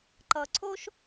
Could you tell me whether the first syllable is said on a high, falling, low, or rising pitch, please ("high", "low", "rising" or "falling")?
low